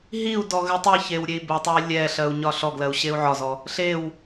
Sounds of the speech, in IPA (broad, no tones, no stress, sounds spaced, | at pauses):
ɦ i u̯ d ɔ ɣ ɘ tˤ i ç e w ɾʲ e i̯ b ɘ tˤ ɛ i̯ lʲ ɛ ɬ ɜ u̯ ɲ ɒ ɬ ɔ ɡ l ɜ u̯ ɕ e u̯ ʕ ɒ z ɔ | ɬ e w